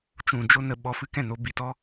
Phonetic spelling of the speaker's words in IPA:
t͡ʃ ũ˨ d͡ʒ o˧ n ə˨ ɓ ɔ˧ f ɨ˦ k ɛ̃˦˨ n o˧ b i˨ t ɔ˦

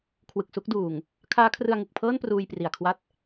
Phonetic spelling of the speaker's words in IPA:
kʰ w ɯ˨˩ k̚ s u˦˥ k̚ d uː˨˩ ŋ | kʰ aː˦˥ kʰ r ɯ˧ a̯ ŋ ɯ˨˩ k̚ pʰ ɤː˥˩ n p r uː˧ j p r i˨˩ a̯ kʰ w a˥˩ t̚

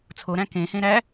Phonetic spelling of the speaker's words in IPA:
t͡sʰ o ɾ æ̃ k ẽ h ẽ ɾ æ

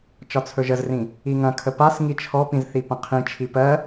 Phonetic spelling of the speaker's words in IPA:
t͡ʃ ɒ t͡sʰ ɵ ʒ ə z r ĩ | i ŋ ɐ̃ kʰ ə p a s ŋ i t͡ʃʰ ɔ p ĩ z θ i p ɐ̃ qʰ ĩ t͡ʃʰ i p ɜ

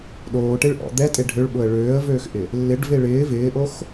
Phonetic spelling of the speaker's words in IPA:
ɗ oː ʈ e ɭ ʔ ɔ̰ d̪ ɛ tʼ e ɖʱ ø ɭ ɓ ʊ ə̯ ɭ øː ə̯ v øː x ʔ ɪ | lː ɪ ɖ v e ɭ ɪː v ɪː ʔ o x

